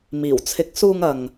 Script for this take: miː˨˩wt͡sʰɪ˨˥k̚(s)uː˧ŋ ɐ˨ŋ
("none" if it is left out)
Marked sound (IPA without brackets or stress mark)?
s